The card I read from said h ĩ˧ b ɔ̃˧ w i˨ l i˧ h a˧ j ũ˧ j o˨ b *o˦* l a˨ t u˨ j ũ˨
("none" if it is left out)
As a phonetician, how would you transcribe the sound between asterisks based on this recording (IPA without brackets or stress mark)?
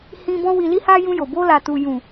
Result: o˧